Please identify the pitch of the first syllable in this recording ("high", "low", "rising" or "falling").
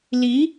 rising